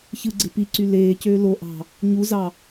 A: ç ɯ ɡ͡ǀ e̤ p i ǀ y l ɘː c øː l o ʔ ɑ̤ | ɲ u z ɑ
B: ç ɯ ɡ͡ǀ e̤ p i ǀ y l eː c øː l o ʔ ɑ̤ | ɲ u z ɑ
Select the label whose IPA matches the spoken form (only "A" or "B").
B